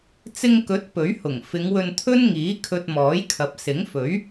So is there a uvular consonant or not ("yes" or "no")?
no